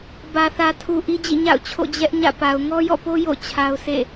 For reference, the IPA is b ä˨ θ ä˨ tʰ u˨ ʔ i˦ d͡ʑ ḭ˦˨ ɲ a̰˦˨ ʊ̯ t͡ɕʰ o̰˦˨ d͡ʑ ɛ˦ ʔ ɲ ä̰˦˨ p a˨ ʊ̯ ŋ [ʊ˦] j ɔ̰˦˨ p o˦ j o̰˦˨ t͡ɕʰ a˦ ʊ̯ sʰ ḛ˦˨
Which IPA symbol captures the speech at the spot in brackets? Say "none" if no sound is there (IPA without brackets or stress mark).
ɔ˦